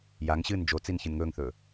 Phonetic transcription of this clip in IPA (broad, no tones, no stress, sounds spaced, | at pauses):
j a ŋ ɕ ɨː n d͡ʒ o t͡s i n ç ɨ n ŋ ɵː ŋ θ ɵː